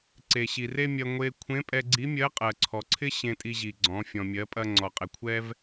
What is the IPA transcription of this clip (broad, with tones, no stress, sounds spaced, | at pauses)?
ǀ e˩ ɕ i˩ r e˥ mʲ ɐ˧ ŋʷ e˧ kʷʰ ẽ˧˥ pʼ ɛ˧ ɡ͡ǀ i˧˥ mʲ ɜ˧˥ qʼ ɜ˩ ǀʰ ɔ˩ ǀʰ ɪ˥ ɕ ẽ˧ tʼ i˧ ʑ i˩ ɡ͡ǀ ɔ̃˩˧ fʲ ɔ̃˩ mʲ ɜ˩˧ pʼ ɐ˧ ŋ͡ǀ ɔ˩ qʼ ɪ˩ kʷʰ ɛ˥ v